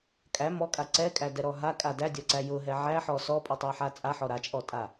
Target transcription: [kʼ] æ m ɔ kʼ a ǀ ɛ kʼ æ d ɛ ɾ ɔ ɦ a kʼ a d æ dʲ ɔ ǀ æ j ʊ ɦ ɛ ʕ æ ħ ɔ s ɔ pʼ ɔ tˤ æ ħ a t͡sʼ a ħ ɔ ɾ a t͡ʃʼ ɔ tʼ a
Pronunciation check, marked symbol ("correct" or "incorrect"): correct